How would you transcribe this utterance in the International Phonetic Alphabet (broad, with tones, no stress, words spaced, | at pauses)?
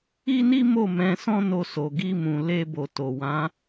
i˦ni˦mo˦˨ mɛ̃˧sɔ̃˦ no˧so˨ ɡi˧mũ˨ le˧ bo˨to˨wã˨˦